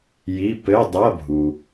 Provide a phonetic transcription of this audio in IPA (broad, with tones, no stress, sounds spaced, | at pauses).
j i˧˥˧ p ɘ˧˥˧ dˤ ɐ˧˥˧ bʱ u˩